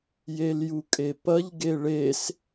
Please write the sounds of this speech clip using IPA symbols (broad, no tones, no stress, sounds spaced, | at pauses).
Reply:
j e l j u kʼ e p ɐ ʎ ɡ e ɭ e s